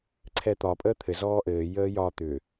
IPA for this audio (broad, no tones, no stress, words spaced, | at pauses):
ǀʰɛt̪ɒ pʼəːt̪ʰɘ zɔːʔɘː jəːjɒ t̪ʏ